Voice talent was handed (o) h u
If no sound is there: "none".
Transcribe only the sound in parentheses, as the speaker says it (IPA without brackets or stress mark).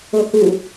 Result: o